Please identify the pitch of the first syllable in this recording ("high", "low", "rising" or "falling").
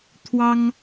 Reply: high